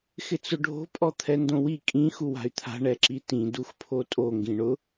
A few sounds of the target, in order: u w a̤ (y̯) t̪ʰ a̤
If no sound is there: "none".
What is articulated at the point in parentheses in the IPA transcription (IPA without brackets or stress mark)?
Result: y̯